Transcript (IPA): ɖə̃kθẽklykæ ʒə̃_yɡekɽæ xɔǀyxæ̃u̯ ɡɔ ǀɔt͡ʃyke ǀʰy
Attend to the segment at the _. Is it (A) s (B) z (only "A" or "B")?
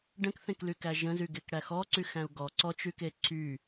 B